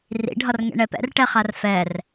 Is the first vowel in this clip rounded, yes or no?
no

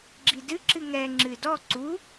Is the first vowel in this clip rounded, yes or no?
no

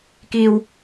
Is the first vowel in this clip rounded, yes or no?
no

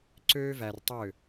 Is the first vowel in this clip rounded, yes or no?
yes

